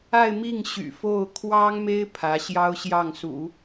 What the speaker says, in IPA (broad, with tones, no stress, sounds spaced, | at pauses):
a˥˧ ɪ̯ m i˥˩ ŋ ɕ y̰˨˩ f o˥˩ ʊ̯ kʰ w ɑ˥ ŋ m e˥ ɪ̯ pʰ ä˧˥ ɕ j ɑ˥ ʊ̯ ɕ j ɑ˥˩ ŋ s ṵ˨˩˦